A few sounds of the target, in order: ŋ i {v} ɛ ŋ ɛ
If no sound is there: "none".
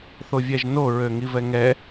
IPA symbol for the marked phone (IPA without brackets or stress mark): v